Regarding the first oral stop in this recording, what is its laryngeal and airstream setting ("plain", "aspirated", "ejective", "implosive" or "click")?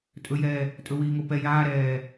ejective